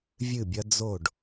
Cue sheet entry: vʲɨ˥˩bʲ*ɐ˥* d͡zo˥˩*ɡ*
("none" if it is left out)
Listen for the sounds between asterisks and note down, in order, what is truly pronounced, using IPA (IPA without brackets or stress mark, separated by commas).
ɐ˥, ɖ